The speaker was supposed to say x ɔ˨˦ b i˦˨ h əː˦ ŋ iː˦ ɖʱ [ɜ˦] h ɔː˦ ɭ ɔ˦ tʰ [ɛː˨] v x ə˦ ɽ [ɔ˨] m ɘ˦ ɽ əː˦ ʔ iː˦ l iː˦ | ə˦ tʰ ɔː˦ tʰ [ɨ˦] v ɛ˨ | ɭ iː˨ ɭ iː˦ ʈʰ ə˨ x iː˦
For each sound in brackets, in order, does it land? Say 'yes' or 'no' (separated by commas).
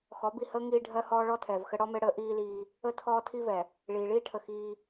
yes, yes, no, no